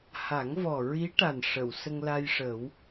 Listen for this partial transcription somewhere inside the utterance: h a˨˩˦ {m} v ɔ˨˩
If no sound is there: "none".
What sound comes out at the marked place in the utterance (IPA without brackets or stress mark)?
ŋ